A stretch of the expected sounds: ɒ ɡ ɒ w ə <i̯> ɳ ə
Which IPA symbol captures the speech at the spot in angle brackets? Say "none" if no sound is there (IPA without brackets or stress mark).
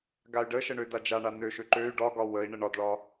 i̯